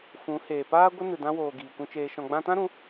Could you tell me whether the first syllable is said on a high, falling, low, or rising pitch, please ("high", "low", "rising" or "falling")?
rising